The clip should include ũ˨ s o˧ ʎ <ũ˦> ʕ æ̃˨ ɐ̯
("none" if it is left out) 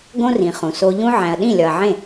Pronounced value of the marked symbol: ũ˦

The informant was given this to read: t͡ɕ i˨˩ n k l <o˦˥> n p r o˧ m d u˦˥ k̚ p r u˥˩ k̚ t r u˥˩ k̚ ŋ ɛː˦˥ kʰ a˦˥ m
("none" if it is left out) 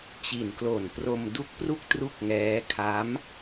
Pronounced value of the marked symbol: o˨˩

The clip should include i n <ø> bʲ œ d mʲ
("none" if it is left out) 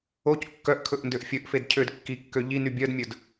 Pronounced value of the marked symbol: y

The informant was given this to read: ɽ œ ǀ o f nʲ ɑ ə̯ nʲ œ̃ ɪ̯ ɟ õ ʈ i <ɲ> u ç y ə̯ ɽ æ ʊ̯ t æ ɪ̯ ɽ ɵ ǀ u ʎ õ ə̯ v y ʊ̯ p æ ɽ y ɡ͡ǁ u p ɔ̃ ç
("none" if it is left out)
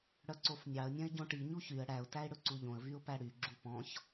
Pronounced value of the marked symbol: ɲ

